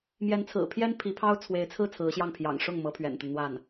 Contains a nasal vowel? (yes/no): no